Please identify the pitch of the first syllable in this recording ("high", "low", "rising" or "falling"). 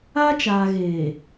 high